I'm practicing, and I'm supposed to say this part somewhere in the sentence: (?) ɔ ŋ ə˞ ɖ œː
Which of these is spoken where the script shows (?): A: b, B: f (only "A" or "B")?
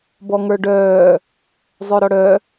A